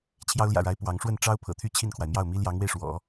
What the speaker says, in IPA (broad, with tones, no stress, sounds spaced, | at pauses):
t͡ɕʰ j ɑ˥ ʊ̯ l j ä̰˨˩ ɻ a˧˥ ɪ̯ p w ɑ˧˥ ŋ ʂ w ə˥˩ n ʈ͡ʂ ɑ˥ ʊ̯ pʰ ɤ̰˨˩ t̪ʰ y˥˧ t͡ɕʰ i˥˩ n kʰ w a˩ ɪ̯ m j ɑ˥˩ ʊ̯ m i˥ l j ɑ˧˥ ŋ w e˧ ɪ̯ ʂ w ɔ̰˨˩˦